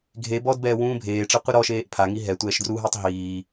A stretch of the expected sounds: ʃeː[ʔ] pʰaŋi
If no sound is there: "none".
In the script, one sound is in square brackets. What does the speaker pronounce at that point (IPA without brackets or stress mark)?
ʔ